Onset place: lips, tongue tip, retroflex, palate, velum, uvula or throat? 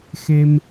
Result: velum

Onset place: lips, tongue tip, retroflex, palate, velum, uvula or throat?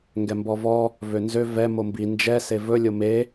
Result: velum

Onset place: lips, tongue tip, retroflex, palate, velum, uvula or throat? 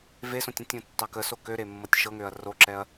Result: lips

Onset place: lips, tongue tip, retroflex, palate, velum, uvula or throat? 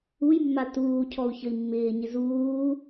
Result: palate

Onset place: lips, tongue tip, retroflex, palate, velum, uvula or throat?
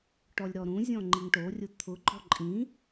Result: retroflex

